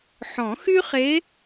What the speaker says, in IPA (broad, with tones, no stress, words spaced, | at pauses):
ħɔ̃˨˩˦xy˥χe˧˥